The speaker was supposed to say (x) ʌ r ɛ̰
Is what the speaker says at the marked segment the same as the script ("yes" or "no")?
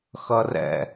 yes